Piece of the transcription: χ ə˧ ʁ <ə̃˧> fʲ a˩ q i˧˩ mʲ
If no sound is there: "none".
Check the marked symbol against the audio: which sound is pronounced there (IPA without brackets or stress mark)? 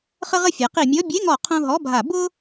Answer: ə˧